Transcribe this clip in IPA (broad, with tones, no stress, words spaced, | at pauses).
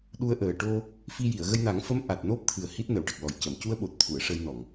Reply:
ɗu˧ə̯ʔəː˨˩ ʈo˧ | fi˧ji˨˩˨ə̯ ɣə˧jna˨˩˦ŋfə˧˥m ʔa˨˩t̚no˦˥p̚t̪ʰɨ˨˩ə̯ hi˦˥t̚nə˨˩˨wʈə˨˩k̚lɔ˨˩j cə˨˩˨mcu˧ə̯ɓo˨˩t̚t̪ʰu˨˩˨ə̯ ʂə˧jnɔ˨˩˨ŋ